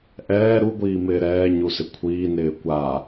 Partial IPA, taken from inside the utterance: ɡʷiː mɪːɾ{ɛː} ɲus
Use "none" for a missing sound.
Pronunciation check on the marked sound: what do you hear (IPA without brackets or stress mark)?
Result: ɛː